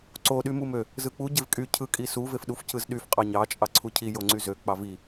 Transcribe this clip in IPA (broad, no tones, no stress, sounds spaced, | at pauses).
ǀ o ɗ y m u m ø | z ɯ k͡p u ɟ e v kʼ y cʰ ɯ kʼ i s u v e f ɗ u f c ɯ z ɗ y f qʼ ɑ ɲ ɑ t͡ʃʼ ɑ ǀʰ u cʰ i j o ŋ͡ǀ y z ø k͡p ɑ v i